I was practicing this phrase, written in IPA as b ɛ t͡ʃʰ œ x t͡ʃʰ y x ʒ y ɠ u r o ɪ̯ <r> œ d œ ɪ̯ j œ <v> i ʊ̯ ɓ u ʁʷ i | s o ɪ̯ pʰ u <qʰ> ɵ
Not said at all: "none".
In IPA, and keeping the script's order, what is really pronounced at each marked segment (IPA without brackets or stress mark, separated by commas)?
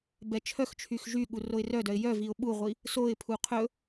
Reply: r, v, qʰ